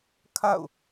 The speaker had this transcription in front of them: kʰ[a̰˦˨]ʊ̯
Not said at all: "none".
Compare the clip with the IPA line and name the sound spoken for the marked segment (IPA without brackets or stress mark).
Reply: a̰˦˨